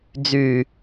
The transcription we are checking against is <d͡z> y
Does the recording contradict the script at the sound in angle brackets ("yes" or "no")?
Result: no